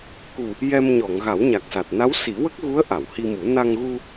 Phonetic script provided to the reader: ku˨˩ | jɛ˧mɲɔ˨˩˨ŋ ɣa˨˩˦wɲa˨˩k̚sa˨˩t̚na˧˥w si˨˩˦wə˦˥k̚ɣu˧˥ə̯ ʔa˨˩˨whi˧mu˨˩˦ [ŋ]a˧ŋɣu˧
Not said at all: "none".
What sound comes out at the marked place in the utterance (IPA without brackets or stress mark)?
n